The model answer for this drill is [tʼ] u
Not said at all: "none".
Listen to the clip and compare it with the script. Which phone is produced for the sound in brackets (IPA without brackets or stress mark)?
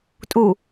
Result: tʼ